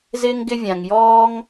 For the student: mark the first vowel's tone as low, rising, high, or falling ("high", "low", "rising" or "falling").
high